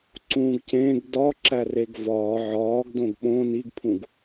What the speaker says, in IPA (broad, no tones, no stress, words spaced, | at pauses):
ǀũːɡcẽːɡ dɒ ǁæreɡvɒː ʕɒːɡdõɡ ɓõ niɡpʰũɡ